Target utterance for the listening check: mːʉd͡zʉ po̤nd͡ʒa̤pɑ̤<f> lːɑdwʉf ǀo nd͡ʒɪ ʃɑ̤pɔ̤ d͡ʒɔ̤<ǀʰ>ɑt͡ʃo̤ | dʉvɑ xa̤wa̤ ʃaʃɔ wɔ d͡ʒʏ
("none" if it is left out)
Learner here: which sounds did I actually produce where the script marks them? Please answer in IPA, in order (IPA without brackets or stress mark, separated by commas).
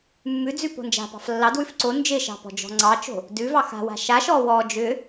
f, ŋ͡ǀ